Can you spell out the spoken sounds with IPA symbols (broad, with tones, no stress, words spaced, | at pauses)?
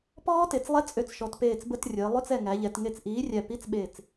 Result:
pɔː˦˥te˩˧t͡s lˠɛ˧˥˧t͡sʼø˧˩t͡sʃɔ˩˧t peː˧˩t͡sbə˧˥˧trʲəː˩˧ lˠø˧˥˧t͡sɛ˧˩ ŋæ˩˧ʎɛ˩˧tŋe˧˩t͡s ʔiː˨˥rʲæ˧˩ pi˧˥˧t͡sɓe˧˩t͡s